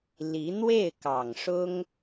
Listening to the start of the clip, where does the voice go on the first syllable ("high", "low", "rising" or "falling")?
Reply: rising